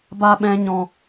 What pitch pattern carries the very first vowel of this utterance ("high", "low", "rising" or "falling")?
high